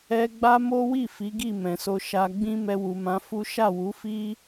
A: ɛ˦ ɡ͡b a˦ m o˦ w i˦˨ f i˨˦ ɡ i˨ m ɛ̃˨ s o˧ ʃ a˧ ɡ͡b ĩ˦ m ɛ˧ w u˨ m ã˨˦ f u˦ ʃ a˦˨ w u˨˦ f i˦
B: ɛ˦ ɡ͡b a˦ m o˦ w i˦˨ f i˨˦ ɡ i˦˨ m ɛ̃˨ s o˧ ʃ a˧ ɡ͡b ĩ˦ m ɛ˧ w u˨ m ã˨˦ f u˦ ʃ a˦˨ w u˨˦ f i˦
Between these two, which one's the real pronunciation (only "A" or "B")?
B